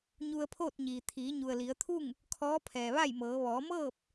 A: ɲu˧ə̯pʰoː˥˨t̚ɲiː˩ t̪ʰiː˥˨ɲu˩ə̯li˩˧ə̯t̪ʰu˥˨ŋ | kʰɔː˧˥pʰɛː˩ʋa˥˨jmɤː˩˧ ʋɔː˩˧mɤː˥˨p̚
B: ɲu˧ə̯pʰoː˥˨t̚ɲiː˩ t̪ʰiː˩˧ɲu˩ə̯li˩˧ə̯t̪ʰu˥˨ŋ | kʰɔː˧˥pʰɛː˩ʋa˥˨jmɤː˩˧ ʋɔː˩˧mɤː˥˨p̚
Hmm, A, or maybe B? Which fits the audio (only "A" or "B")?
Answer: B